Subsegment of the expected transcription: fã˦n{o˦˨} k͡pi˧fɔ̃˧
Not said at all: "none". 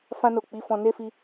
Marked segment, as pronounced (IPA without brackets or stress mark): o˦˨